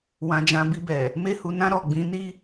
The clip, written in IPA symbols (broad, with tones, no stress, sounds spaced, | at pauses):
w ã˨ d͡ʒ ã˨ b i˧ b ɛ˨ | m e˧ h u˨ n ã˧ ɾ ɔ˨ ɡ͡b ĩ˨˦ n i˦